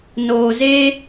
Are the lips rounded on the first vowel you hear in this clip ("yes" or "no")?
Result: yes